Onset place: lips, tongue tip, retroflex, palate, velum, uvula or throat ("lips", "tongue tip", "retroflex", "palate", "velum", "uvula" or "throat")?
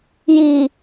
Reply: palate